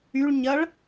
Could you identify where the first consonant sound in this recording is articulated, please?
retroflex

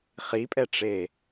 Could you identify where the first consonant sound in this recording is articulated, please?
uvular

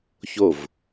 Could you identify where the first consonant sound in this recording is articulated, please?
palatal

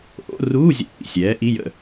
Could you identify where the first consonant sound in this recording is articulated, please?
glottal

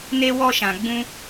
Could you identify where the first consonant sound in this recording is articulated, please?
alveolar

